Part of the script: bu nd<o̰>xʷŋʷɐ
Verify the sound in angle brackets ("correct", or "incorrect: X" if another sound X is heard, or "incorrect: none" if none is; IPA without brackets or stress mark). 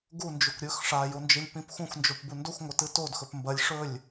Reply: incorrect: o